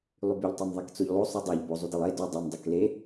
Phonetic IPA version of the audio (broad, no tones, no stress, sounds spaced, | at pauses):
lˠ y b y ʎ tˤ æ m ðˤ e k t͡s o ʎ lˠ o sˤ u dˤ æ ʎ b o zˤ u d i lˠ e d y dˤ i m dˤ o k l e